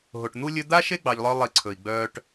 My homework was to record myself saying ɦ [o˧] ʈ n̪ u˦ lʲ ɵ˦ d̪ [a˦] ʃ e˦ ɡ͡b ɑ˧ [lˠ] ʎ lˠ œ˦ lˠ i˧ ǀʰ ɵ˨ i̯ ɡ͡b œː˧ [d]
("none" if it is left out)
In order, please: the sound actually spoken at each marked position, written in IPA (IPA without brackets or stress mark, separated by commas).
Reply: o˨, a˦, none, ʈ